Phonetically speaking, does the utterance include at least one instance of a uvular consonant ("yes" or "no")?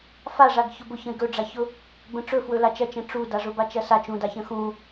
no